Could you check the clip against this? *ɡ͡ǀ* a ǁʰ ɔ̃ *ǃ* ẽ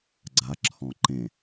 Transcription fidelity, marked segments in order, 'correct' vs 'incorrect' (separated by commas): correct, correct